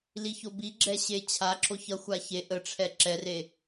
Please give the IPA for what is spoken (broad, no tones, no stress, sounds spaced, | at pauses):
l i ç o b i ɡ͡ǁ ɛ ɕ e t͡ɕʰ a ǁ o ç ʌ xʷ a ç e ʔ ə ʈ͡ʂʰ ɛ ǁ ɛ r e